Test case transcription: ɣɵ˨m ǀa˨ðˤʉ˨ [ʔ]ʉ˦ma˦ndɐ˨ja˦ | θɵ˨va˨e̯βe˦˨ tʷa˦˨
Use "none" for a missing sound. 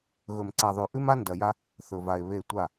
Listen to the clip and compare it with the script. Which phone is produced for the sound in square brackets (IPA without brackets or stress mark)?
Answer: ʔ